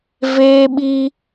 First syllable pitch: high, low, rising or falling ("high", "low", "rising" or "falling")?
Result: high